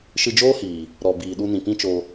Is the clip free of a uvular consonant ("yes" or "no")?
yes